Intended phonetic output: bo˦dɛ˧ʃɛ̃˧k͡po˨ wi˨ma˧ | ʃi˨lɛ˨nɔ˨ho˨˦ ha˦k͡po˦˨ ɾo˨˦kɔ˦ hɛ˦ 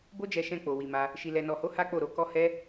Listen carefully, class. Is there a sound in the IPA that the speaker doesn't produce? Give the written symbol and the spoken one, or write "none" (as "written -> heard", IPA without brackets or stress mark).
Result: d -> d͡ʒ